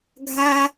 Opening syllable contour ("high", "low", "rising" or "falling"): high